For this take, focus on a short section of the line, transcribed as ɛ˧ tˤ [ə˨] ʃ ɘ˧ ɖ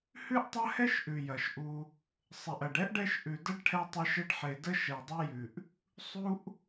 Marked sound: incorrect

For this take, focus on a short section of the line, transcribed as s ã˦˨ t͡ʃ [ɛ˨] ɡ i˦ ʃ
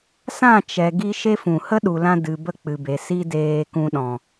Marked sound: correct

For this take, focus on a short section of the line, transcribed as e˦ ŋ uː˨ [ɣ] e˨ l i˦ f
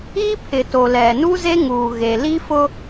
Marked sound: correct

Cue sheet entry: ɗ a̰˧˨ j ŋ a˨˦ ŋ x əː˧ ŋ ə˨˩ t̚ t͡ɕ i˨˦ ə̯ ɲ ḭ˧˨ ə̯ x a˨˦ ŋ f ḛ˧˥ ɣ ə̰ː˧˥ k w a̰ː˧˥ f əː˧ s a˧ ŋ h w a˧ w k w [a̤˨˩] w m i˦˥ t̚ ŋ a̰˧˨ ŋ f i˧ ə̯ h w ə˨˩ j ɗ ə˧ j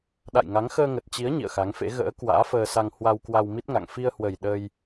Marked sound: incorrect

